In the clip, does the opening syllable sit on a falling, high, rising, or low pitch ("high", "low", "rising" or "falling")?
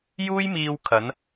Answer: high